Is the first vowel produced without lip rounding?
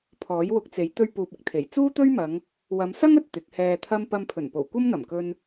no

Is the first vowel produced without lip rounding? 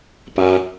yes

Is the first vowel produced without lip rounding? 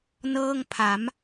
yes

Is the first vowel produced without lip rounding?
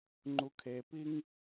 no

